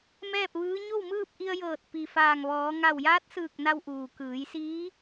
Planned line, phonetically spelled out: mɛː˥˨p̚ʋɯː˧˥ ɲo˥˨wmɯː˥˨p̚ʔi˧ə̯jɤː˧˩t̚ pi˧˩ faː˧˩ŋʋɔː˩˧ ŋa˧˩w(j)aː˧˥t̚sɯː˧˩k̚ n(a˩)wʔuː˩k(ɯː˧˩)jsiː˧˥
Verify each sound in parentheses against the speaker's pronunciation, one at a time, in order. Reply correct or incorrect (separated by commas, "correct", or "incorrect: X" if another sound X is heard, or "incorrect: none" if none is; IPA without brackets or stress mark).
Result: correct, incorrect: a˧, incorrect: ɯː˩˧